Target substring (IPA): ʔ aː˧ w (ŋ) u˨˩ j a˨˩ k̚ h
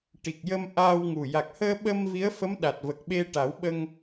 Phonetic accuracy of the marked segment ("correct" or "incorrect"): correct